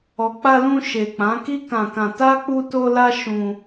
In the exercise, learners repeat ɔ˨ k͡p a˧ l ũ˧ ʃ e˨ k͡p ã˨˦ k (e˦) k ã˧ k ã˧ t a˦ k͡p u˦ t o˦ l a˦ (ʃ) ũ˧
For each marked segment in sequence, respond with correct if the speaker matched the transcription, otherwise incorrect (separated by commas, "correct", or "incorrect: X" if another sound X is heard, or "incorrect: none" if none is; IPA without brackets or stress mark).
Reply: incorrect: i˦, correct